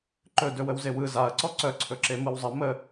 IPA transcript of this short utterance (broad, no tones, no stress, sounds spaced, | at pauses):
ǃ ɵ d ɵ w ə w z e w ɯ z a ɐ̯ ǀ ɔ ǀ œ ǀʰ ɵ ǁ e m ɯ w zˤ ə m ə